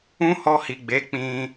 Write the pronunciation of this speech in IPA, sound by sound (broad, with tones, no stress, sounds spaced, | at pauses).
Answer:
ũ˦ h ɔ˧ h i˨ ɡ͡b e˨˦ k͡p ĩ˧